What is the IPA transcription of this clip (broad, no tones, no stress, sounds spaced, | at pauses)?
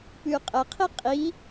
p ʉ qʼ ə qʰ i qʼ i